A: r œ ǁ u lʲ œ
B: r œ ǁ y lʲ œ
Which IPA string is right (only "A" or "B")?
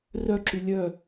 B